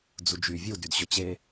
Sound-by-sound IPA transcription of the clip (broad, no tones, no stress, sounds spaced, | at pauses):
d͡z u d͡ʒ y vʲ u d y d ɕ ɵ t͡ɕ e